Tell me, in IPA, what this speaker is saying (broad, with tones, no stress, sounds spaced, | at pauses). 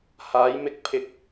h aː˨˧ j m ɪ˥ k̚ pʰ ɪ˥ k̚